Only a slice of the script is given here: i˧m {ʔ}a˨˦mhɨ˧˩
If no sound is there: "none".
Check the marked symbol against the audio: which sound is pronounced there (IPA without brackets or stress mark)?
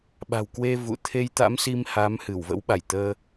h